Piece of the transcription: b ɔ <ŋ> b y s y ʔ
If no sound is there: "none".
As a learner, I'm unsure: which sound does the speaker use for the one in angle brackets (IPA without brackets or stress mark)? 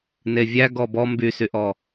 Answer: m